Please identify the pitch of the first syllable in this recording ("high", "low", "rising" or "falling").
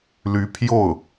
rising